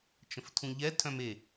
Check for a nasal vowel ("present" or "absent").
present